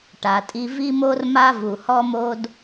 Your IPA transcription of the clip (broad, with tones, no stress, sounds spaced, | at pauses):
ʈ a˩ tʼ i˧ v i˥ m o˥ r m a˥ v u˩ h ɔ˥ m o˥ d